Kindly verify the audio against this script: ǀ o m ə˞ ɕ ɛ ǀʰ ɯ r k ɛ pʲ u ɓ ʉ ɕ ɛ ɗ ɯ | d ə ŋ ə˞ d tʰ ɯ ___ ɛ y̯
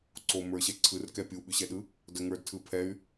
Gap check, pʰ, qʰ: pʰ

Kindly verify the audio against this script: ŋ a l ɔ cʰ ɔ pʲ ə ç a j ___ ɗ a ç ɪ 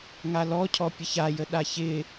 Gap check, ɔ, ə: ə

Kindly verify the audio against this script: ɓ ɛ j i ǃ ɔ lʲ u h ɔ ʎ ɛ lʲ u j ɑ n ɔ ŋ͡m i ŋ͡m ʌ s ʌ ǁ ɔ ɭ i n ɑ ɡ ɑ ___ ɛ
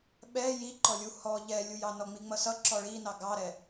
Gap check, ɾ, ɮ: ɾ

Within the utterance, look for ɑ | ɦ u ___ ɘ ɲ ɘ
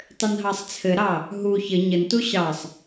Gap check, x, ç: ç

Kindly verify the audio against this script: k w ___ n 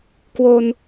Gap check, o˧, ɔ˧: o˧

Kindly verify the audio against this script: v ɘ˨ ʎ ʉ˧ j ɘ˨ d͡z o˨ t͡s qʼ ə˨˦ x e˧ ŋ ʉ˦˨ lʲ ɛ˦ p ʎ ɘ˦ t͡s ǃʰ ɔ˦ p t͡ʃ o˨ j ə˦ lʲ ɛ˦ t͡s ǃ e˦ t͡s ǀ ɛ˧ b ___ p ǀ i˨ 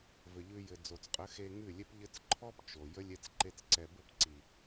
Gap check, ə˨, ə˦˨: ə˦˨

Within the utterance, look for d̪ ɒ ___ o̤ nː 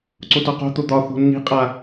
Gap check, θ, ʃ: θ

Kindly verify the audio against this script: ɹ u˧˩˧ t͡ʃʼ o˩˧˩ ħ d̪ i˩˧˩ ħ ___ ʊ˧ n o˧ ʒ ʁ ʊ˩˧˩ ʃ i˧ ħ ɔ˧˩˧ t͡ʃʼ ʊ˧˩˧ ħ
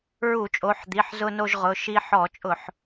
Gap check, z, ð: z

